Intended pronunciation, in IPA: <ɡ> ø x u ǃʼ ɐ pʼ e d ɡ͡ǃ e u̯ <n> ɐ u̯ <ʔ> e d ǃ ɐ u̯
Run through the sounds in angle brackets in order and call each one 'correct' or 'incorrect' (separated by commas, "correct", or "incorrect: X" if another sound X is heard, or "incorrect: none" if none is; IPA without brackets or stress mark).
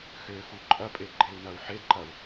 incorrect: x, correct, incorrect: ħ